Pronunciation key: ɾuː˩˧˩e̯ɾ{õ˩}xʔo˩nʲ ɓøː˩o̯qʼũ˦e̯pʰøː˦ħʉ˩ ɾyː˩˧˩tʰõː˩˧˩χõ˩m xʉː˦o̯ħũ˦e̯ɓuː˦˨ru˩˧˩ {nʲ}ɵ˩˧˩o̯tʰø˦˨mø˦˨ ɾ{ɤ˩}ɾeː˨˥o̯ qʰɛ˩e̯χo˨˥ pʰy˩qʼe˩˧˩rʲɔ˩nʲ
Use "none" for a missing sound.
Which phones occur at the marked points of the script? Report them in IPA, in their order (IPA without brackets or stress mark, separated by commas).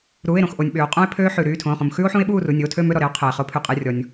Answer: õ˩, nʲ, ɔ˩